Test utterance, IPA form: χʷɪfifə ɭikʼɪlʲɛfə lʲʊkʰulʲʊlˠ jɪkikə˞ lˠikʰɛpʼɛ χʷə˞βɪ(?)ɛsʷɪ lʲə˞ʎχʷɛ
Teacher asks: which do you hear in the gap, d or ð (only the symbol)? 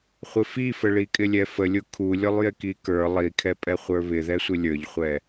ð